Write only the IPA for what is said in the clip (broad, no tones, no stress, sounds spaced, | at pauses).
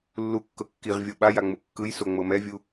lː u kː ɤ kː i ʁ vʲ ɤ ɓ a j a ŋ͡m u kː ɯ j s o ŋ͡m ɤ m ɛ vʲ u